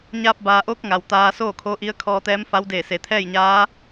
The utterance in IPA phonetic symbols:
ɲ aː˧ p̚ b aː˩ ʔ oː˧˥ k̚ ŋ a˩ w t̪ aː˧ s oː˥˨ kʰ o˧˥ ʔ i˧˥ ə̯ kʰ ɔː˧ t̪ ɛː˧˥ m f a˧˥ w d eː˧˩ s e˩ t̪ʰ ɛː˥˨ j ɲ aː˧˥

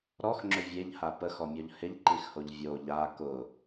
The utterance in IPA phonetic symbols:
ɾ ɔ x ŋ͡ǁ ʏ vʲ e ʎ h a p ə x ɔ mʲ ɔ ʎ h ɪ ʎ ǃ i x h o ʎ vʲ o ʎ a k ʊ

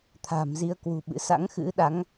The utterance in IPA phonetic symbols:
t̪ʰ a̤˨˩ m z i˧ ə̯ k w ṳ˨˩ ɓ ɨ̰˧˥ s a̰˧˥ ŋ x ɨ̰˧˥ ɗ a˨˦ ŋ

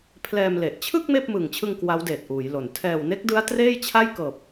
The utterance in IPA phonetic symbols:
pʰ l ɛː˧ m l e˨˩ ʔ t͡ɕʰ ɯ˥˩ k̚ m eː˥˩ p̚ m ɯː˨˩ ŋ t͡ɕʰ ɯ˧ ŋ k w a˦˥ w d eː˨˩ t̚ ʔ uː˩˦ j l o˨˩ n tʰ ɛː˨˩ w n e˦˥ k̚ d ɯ˦˥ a̯ t r eː˥˩ j t͡ɕʰ a˥˩ j k ɤː˨˩ p̚

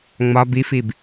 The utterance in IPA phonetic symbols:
ŋ͡m ɒ b i f i b

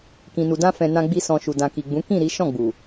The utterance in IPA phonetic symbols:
k ĩ˨ n u˨ d ã˧ f ɛ̃˨ n ã˧ ɡ͡b i˧ s ɔ̃˨ ʃ u˨ d ã˨ k i˨ ɡ͡b ũ˨˦ k ĩ˦˨ ɾ i˨˦ ʃ ɔ̃˦˨ ɡ͡b u˨

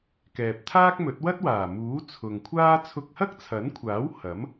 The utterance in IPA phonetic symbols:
k ɛː˨ p̚ t̪ʰ aː˥ k̚ m ɵ˨˥ t̚ w ɐ˥ t̚ w aː˨˩ m uː˨˥ t͡sʰ ʊ˨ ŋ kʷʰ aː˥ t͡sʰ ʊ˧ k̚ h ɐ˥ k̚ t͡sʰ ɐ˨˥ n kʷʰ aː˨˥ w h ɐ˨˥ m

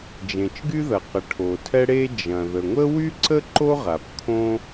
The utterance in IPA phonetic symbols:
d͡ʒ ẽ˩ t͡ʃ ɡ y˥ ð ɐ˩ q ə˩ ʈʰ o˩ tʰ ɛ˥ ɽ e˥ d͡ʒ ɐ̃˩ ð ə˩ ŋʷ ə˥ w y˥ ǀ ə˥ ǃ o˥ ʁ a˩ p kʰ õ˥

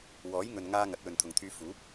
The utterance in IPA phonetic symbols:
w ɔː˨˥ j ŋ ɵ˨ n ŋ aː˧ ŋ ɐ˨˥ t̚ w ɵ˨ n t̪ʰ ʊ˨ ŋ t̪ʰ yː˧ f uː˨˥ p̚

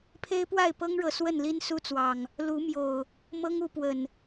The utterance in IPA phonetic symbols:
pʰ e˦ ɪ̯ p w a˥˨ ɪ̯ p ɤ˦ ŋ ɻ ɤ˨ s w ə˥˨ n l i˦ n s u˦ t͡s w ɑ˨˩ ŋ | l u˨˦ m j o˨˩ ʊ̯ | m ɤ˦ ŋ u˨˦ p w ə˨˩ n

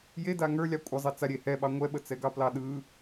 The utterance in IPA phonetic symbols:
j e d a ŋ ə˞ lʲ ɑ kʷʼ ə zˤ e t͡s a ɾʲ e h ɛ ɓ ɑ ŋʷ ɛ ɓ ə t͡s ɛ ɡ ɑ p l ɑ ɗ ɯ

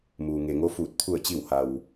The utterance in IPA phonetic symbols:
m uː˩ ŋ e˩ ŋ o˧˥ f uː˧˩ t̚ t̪ʰ u˧˩ ə̯ t͡ɕ i˧˩ w h a˩ w

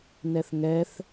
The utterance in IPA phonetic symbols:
n ɛ θ ŋ ɛ θ

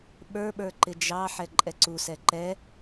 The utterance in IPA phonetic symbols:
ɓ ə˞ ɓ ə˞ ǃ ɪ d͡ʒ ɑ ħ ɛ ǃʼ ɛ ǀ u s ɛ ǃ ɛ

